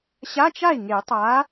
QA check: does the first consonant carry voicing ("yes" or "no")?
no